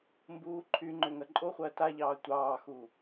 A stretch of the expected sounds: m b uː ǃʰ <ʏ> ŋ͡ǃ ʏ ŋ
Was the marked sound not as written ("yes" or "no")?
yes